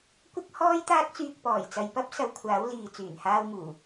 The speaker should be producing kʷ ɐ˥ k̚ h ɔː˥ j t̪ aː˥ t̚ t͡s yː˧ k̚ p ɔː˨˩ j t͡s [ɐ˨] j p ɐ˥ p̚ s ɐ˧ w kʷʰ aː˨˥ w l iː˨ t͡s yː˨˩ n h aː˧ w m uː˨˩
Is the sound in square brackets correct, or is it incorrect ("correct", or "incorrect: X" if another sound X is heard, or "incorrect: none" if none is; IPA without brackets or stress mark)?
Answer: correct